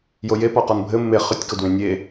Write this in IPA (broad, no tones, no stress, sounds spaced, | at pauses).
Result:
j o j e p ɔ q ɔ n bʱ ɘ mː e χ ʏ tʲ k o d w ẽ nʲ e